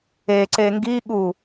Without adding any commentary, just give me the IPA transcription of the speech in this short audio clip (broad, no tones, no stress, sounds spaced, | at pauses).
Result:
e ǀ e ŋ ɡ i ɠ u